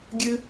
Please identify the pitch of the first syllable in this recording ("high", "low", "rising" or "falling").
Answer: high